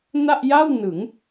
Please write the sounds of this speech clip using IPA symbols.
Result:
n a˥˩ ʔ j a˥˩ w n ɯ˩˦ ŋ

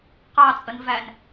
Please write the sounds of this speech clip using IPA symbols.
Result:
q ɑ t͡sʼ ə n v æ n

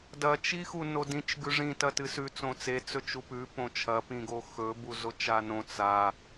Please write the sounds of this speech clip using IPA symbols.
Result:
d ɐ t͡ʃ i x u n o d ĩ t͡ʃ ɡ ʉ ʐ ĩ t ɐ t ɨ s ʉ t͡s õ t͡s e t͡s ɵ t͡ʃ u p ʉ p õ t͡ʃʰ ɐ p ĩ ɡ o x ɵ b u z o t͡ʃ a n õ t͡s a

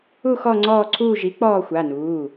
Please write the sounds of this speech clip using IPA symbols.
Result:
u˦˨ x ɔ˦˨ ŋ͡ǀ ɔː˦˨ ǀʰ uː˦˨ ʒ i˩˥ k͡p ɔː˦˨ xʷ a˩˧˩ n uː˩˧˩

